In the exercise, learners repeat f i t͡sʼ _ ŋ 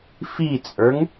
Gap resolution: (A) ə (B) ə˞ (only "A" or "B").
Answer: B